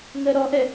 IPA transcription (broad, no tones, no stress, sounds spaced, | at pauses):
ŋ ɜ ɾ ɔ ʔ ɛ